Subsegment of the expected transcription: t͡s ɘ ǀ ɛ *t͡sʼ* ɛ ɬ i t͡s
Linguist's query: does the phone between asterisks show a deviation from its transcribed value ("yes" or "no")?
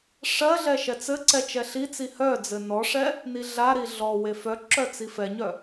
yes